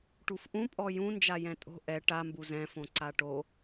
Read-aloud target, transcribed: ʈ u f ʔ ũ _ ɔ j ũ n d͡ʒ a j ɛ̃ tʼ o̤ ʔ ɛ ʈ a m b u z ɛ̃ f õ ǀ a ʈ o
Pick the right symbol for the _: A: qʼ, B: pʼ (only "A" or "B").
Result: B